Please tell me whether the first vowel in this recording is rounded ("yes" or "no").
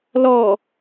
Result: yes